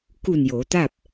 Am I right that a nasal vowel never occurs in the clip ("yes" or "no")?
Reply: yes